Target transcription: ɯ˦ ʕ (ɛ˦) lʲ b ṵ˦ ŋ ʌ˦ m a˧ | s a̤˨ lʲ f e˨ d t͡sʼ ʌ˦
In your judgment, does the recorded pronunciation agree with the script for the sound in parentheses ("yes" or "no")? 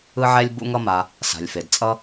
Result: yes